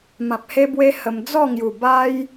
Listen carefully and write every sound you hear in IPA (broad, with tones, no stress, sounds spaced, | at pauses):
m ã˨ p̚ h e˧ b w e˧ h ə˧ m d͡z ɔ˥˧ ŋ j u˨˩ b a˦ j